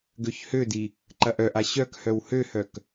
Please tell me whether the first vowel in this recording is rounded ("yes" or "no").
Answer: yes